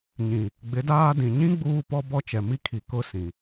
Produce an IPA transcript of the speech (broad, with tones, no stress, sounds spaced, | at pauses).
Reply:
ɲ ĩ˨ | ɡ͡b ɪ˨˦ d aː˦ d ĩ˨ ɲ ĩ˦ ɡ͡b uː˦ p ɔ˦ b ɔ˦ t͡ʃ ɛ˨ m i˦ kʰ i˨ k ʊ˦˨ s ĩ˨